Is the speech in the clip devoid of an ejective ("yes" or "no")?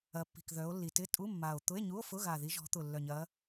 no